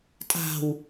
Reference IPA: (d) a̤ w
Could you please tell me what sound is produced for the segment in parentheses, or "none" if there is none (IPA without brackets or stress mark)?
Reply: tʼ